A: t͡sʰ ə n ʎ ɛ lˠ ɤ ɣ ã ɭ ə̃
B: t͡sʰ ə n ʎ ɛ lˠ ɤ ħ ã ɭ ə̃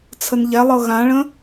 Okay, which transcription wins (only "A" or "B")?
A